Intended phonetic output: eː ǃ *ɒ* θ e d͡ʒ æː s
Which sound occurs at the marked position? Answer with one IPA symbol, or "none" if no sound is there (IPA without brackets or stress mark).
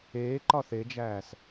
ɒ